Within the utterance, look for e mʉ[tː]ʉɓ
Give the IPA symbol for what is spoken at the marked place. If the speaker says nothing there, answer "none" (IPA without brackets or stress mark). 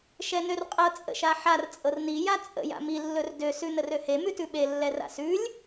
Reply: t